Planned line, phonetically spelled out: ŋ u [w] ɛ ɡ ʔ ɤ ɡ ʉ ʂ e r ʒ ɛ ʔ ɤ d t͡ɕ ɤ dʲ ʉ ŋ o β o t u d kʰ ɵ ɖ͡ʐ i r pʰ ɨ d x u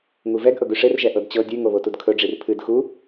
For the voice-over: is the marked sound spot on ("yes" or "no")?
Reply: no